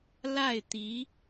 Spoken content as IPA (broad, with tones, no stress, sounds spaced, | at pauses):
l a˥˩ ɪ̯ t̪ i˧˥